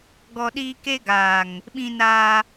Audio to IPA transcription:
ɡ ɔ˦ ɗ iː˦ k e˦ ɡ aː˨ ŋ | ɓ ĩ˦ n aː˦

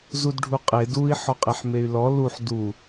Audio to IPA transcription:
z u d ɖʱ u qʼ e d u i̯ ħ ɔ qʼ e ħ m e y̯ l ɔ l u ħ d u

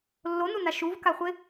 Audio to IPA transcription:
lː o n u n a ʃ u v k a χʷ e

